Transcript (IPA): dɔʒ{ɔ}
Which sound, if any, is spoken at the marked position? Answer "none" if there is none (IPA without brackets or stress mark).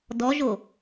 o